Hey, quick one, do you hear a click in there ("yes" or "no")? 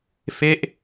no